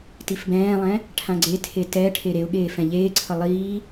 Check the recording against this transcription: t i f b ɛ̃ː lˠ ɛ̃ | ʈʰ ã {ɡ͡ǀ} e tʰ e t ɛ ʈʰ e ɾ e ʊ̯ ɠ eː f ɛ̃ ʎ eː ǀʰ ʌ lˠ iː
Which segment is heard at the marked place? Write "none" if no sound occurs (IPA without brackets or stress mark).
ɡ͡ǀ